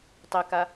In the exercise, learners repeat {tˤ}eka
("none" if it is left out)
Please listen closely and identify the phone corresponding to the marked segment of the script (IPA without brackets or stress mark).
tˤ